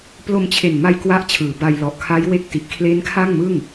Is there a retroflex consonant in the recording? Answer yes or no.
no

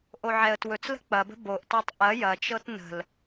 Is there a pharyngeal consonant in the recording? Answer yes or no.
yes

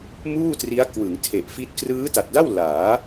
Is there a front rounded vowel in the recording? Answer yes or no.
no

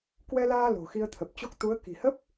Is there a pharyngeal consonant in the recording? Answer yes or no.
no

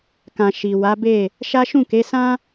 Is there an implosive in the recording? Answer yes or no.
no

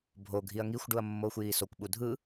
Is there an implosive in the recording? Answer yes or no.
yes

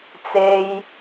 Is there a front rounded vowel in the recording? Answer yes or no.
no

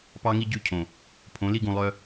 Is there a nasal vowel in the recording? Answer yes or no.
yes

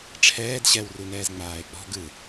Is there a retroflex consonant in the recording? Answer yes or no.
yes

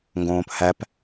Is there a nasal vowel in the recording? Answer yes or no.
yes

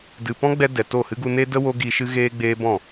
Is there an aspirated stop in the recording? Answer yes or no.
no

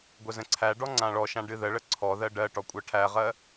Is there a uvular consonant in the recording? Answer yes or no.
yes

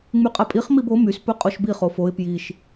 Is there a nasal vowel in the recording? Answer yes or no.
no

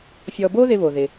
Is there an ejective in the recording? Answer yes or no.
no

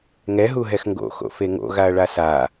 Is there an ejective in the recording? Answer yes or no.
no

